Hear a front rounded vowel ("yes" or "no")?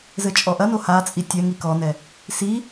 no